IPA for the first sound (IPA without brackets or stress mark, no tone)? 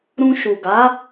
ɾ